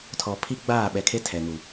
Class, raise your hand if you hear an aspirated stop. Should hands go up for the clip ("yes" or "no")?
yes